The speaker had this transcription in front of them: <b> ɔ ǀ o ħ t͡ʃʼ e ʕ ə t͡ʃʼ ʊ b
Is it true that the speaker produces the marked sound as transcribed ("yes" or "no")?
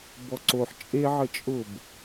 yes